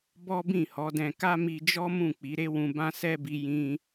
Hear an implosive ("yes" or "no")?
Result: no